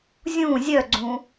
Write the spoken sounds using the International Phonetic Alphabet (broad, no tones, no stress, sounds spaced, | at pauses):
zʲ ũ zʲ œ ɡ͡ǀ ũ